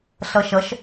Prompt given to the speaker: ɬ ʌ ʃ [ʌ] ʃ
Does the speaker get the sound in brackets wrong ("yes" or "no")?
no